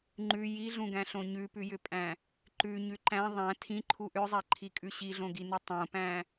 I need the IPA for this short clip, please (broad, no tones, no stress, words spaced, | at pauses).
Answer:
ŋ͡ǃʉ jiɮũɡæ̃ɬõ ɲʉpʉjʏpʼæ̃ | ǃʉɲʉ ǃæ̃ ðˤæ̃ tʰĩǃʰu ʔʏzˤæǃʰikʼʉ ɕiɮõɡinu tˤõpæ̃